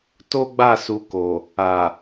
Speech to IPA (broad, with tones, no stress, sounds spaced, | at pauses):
t o˦ ɡ͡b a˦˨ s u˧ k o˨ | a˨